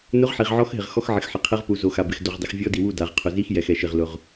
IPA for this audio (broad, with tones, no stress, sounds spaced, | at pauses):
n ʊ˧˥ ʁ ħ i˨ ʁ ʕ ɔ˧˥ x ɦ ɪ˨ ʁ x ɔ˧˥ x ʕ ɪ˨ x ħ ɪ˨ qʰ ɛ˧˥ ʁ p u˨ z o˨ x a˨ b ɪ˨ x d o˨ ʁ dˤ ɪ˨ x vʲ ɔ˧˥ d i˨ w u˥˨ d a˨ ʁ qʰ ʊ˨ z i˧˥ x j ɛ˨ x ɛ˨ ʃ ɪ˨ ʁ l ʊ˨ ʁ